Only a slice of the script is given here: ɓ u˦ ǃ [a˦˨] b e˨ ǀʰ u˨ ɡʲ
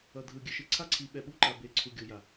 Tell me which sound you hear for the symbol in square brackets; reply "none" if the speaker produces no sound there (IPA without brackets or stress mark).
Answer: a˨